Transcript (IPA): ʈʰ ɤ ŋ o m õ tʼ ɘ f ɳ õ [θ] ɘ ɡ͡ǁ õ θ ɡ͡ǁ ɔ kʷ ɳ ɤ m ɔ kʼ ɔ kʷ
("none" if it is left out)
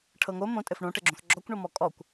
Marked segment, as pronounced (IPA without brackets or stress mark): ʈ